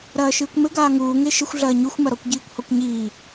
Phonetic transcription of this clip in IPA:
ɾɐːʃɨːkʷmɘ ɡaːŋuː ŋeʃɘxʷɮɐː ɲuxʷmɐ ɾɔkʷɟiːkʷhɔkʷɲiː

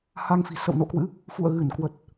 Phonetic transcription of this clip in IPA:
ha˧ŋfi̤˨˩sə̰˧˨w no̰˧˨kwɨ̰˧˥ | fṵ˧˨ə̯ ɣɨ˧˩n kwə˨˩t̚

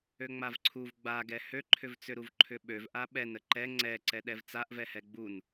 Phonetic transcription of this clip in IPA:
øŋ͡mavǀʰuv ɡ͡baɡɛ høǃʰʏvt͡sʏ ɾuvǃʰʏɓøv ʔaɓɛnə ǃɛ ŋ͡ǀɛǀɛ ɗɛvt͡saʔvɛ hɛɡ͡bun

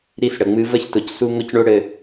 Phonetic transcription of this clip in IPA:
ɾi˧sɽə˨ŋ͡mɨ˧ və˧çtʊ˨c su˧ ŋʊ˦cɳo˦ɽɘ˧

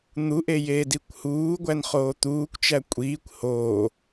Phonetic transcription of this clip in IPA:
n̪uʔe jeːdikʷhuːɡʷæn χoːt̪uːkʷt͡ʃæ kʷʼiːkʷ hoː

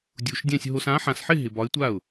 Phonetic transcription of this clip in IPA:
dʲu˧ʃdʲɛ̃˥˧sʲ ɦo˧sã˧˥ ħã˧sħɪ˥˧ ɦɪ˧bɒ˧˥ɪ̯tʷa˥˩ʊ̯

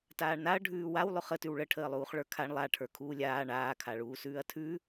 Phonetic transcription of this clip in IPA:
taːɳnaɐ̯ ɖʱʉːwaw lˠʉχə tʉwɭəʈʰəːlˠuːχ ɭə˞kʰaɳ lˠaʈʰə˞ kʰuːlʲaː ɳaː kʰaɭuːsʉːɐ̯tʰʉ

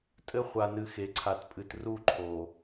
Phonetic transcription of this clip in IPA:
tʼɘ˦ χʷa˨nɨ˨ xe˨ǀʰa˨tpʼɨ˨t ru˦˨ǃʰo˨

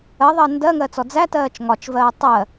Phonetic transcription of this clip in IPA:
ɜðˤɜ ndɜŋɜt͡sɔ d͡zætɜːt͡ʃ ŋɒt͡ʃvɜː tˤɜ

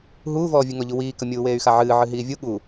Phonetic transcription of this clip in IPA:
ɦuːvɔːvʲɨ ŋɔʎuwiːkə mʲuːweːy̯xaʕɨː ʕɨɦiːvʲu ɠu

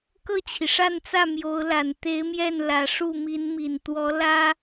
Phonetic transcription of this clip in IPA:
kɤ˥˩t͡ɕʰi˩ʂa˥˧nt͡sä˥˩ mjo˧˥ʊ̯la˨˩n t̪e˧˥ɪ̯mjɛ˥˩nlä˨˩ ʂu˥˩mi˧˥nmi˨˩nt̪wɔ˧˥ lä˥

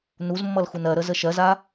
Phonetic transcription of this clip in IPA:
nuzmːʌl xunɜɾə zəʃɜza

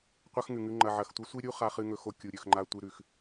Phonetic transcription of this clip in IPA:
qʷɐ˦xŋʉ˨ŋʉ˧ ŋ͡ǃɐ˨ʕɐ˨xtʷɐ˦sʷi˦ ɾʲu˦χa˧χɨ˧ ŋɵ˧xo˧ kʲu˨ɾʲɵ˨xŋ͡ǃa˧ tʷɨ˧ɾʉ˨x

